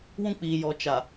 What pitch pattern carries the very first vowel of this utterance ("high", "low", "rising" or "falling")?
high